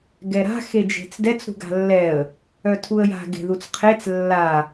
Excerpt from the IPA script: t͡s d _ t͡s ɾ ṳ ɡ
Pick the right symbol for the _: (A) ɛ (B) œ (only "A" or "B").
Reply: A